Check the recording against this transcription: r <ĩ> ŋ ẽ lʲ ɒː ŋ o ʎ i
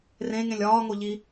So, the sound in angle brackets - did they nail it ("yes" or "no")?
no